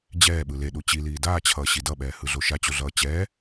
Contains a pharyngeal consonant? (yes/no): no